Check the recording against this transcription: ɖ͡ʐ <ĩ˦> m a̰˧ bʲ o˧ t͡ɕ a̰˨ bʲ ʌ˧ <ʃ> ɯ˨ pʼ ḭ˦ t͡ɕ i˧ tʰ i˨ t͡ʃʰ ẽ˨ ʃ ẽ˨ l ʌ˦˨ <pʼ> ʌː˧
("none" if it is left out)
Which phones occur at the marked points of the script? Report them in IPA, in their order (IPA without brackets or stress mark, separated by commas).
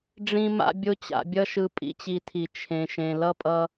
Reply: ĩ˧, ʃ, pʼ